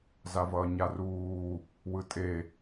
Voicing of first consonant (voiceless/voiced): voiced